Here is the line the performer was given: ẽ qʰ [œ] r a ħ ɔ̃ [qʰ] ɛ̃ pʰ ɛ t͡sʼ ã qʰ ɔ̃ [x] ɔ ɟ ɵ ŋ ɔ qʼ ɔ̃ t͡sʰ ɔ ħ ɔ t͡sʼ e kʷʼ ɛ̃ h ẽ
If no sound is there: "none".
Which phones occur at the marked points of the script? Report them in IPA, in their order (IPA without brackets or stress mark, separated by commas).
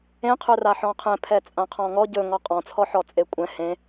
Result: ɵ, qʰ, ŋ